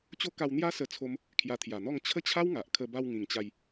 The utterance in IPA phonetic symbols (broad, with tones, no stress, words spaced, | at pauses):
t͡ɕo˦ka˧wn̪ja˦ sə˥˧t͡sʰo˦m | kʰja˧t̪ʰja˨˩n̪ɔ˥˧ŋ t͡ɕʰə˦t͡ɕʰa˦w ŋa˨ʔ kʰə˧ba˧wŋĩ˨˩ŋt͡ɕa˧j